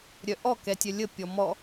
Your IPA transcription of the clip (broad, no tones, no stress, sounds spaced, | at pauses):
ɾʲ œ ʔ ɔ k ɛ tʲ œ lʲ ə pʲ ɔ m ɔ